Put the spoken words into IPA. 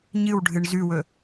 ɲ ɨ w ɖʱ ɨ ɳ z ʉ w ɵ

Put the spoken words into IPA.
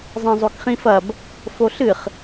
zˤ ẽ zˤ o k χ ĩ f ɐ b | f o ɬ ɨ χ

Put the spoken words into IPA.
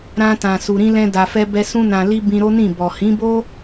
ɾ ã˧ t ã˨ s u˨ ɾ ĩ˧ l ɛ̃˧ d a˨ f ɛ˧ b ɛ˧ s ũ˧ n ã˨ l i˧ b ĩ˧ ɾ o˦ n ĩ˦˨ b ɔ˨ h ĩ˨˦ b o˦

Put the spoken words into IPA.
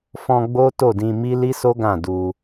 f ɔ̃˧ ɡ͡b o˦ t o˦˨ d ĩ˧ m i˦ l i˦ s o˦ ɡ ã˦˨ d u˧

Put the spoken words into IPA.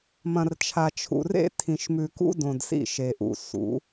m ɐ̃˨ r t͡ʃʰ a˨ t͡ʃʰ ṵ˨ r ḛ˦ tʰ ĩ˨ ʃ m ʉ˨ k ṵ˦ d õ˨ d s ḭ˦˨ ʃ e˨ ʔ ṵ˨ s ṵ˨˦

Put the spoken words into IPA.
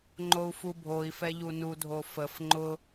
ŋ͡ǃ o u̯ f u bʱ o i̯ f ɛ ʎ u n u dʱ o f ə f ŋ͡ǃ ʊ

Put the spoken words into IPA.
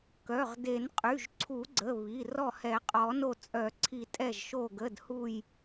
k œ˩˧˩ ʁ d e˨˩˦ n qʼ y˩˧˩ ʒ ǀʰ u˨˩˦ ɡ͡ǀ ə˩˧˩ β i˩˧˩ r ɔ˧˩ h ɛ˨˩˦ qʼ ɔ˨˩˦ n o˧˩ t͡sʼ œ˨˩˦ ǀʰ i˨˩˦ tʼ ɛ˧˩ ʒ ʃ o˧˩ ɡ ə˩˧˩ d h u˧˩ j

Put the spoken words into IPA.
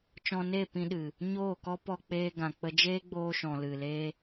t͡ʃ ɔ̃˧ n e˦˨ p ĩ˧ ɗ ɨ˨ | ɲ oː˦˨ k ɔ˦ p ɔ˧ k͡p eː˧ ɡ ã˨ k͡p ə˧ d͡ʒ eː˦ ɡ͡b oː˧ ʃ ɔ̃˨ l ɨ˨ l eː˦

